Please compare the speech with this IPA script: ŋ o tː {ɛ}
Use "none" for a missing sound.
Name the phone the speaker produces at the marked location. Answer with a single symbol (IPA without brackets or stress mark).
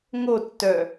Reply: œ